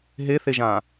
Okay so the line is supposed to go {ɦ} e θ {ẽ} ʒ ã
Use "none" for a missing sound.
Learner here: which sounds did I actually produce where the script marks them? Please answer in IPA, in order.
ɦ, e

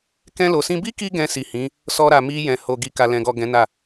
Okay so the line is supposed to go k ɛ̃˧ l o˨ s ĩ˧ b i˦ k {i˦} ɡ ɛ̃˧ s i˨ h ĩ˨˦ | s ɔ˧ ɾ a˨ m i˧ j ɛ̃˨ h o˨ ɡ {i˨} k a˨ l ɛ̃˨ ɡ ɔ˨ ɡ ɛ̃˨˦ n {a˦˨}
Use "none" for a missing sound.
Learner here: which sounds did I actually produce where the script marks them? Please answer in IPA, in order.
i˧, i˨, a˦˨

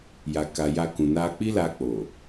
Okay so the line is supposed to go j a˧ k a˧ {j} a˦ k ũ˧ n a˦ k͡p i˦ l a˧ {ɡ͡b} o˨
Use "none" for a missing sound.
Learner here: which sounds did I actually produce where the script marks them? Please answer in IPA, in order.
j, k͡p

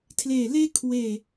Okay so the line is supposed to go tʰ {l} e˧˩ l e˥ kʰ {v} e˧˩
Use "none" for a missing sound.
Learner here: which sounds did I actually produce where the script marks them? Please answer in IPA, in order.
l, w

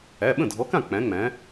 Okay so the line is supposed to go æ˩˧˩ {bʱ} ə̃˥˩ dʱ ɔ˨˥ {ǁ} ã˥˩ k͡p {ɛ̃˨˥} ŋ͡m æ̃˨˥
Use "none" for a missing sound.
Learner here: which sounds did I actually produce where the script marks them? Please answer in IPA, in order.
ɓ, k, æ̃˨˥

